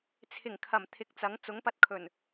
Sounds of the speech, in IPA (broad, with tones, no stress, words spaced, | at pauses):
t͡sʰɪ˨˩ŋkʰɐ˨˩m t̪ʰɪ˨˥k̚t͡sɐ˨˥ŋ t͡sʊ˨˥ŋpɐ˧t̚kʰɵ˨˩n